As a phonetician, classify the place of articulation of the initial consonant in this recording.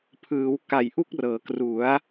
labial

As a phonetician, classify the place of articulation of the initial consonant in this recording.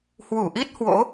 glottal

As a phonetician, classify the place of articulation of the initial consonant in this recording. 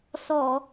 alveolar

